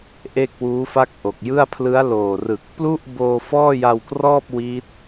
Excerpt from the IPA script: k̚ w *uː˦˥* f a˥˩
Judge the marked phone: correct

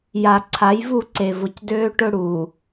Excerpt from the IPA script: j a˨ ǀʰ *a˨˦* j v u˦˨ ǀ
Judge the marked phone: correct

